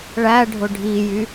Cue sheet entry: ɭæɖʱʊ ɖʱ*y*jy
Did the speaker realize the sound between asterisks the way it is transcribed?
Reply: no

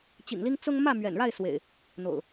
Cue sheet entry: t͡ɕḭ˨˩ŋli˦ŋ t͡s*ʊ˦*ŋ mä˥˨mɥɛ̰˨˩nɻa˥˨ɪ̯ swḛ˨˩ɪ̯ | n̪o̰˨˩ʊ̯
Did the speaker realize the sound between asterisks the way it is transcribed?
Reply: yes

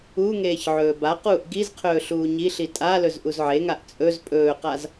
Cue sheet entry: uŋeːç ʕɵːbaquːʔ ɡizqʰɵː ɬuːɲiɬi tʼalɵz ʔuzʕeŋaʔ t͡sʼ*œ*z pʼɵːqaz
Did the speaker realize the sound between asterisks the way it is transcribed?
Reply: no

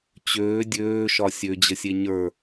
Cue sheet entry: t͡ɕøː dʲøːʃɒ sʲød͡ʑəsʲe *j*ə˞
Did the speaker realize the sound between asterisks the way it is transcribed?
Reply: no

